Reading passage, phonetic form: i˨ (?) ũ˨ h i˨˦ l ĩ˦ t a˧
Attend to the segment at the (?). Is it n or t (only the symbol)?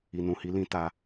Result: n